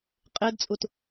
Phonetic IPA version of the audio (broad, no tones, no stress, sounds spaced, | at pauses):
qʼ ɪː d t͡sʼ u t